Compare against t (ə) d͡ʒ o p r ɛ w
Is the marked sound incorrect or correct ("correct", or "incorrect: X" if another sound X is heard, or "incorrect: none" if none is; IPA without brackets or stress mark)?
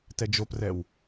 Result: incorrect: ɛ